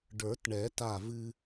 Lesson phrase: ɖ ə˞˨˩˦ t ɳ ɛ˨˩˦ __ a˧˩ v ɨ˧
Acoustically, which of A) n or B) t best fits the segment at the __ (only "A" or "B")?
B